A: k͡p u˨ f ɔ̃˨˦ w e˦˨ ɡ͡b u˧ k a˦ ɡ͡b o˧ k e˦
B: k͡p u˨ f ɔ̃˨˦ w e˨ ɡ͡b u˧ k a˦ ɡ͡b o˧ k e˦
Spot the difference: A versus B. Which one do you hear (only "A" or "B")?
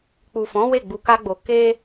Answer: A